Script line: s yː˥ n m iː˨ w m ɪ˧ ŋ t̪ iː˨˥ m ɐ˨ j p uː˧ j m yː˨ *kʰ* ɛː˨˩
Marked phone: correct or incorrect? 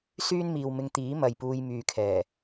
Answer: correct